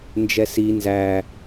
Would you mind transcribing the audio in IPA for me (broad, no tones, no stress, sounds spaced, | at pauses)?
n d͡ʒ ɛ s i n z æ